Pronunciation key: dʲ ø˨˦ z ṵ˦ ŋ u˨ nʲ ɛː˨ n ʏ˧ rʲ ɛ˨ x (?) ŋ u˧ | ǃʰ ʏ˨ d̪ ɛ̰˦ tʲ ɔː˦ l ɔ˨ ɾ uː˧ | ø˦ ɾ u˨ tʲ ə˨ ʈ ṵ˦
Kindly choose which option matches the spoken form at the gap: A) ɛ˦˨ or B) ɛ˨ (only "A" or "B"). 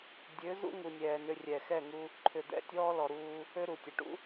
A